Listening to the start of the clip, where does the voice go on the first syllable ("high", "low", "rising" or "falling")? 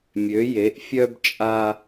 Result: rising